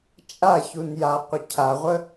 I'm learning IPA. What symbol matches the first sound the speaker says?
t͡ʃʼ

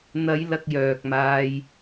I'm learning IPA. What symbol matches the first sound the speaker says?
n̪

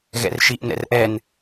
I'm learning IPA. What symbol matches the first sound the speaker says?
ɣ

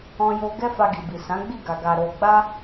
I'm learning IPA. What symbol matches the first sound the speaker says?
ɔ̃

